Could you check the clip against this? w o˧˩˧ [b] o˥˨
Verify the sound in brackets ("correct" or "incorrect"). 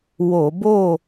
correct